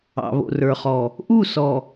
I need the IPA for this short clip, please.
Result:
ɑ̰˨ β o̰˨ r ə˞˨ χ ɔ˨ | ʔ u˦˨ s ɔ˨

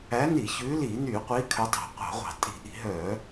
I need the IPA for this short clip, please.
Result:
æ˨˦ n i˧˩˧ ç ʉː˨˦ l iː˧˩˧ n yː˧˩˧ qʷ iː˨˦ kʰ œ˨˦ tˤ æ̤˧˩˧ qʷ ɑ̤˧˩˧ ʁʷ ɑ̤˧˩˧ tʼ i̤˧˩˧ ʔ i̤˧˩˧ ɦ œː˧˩˧

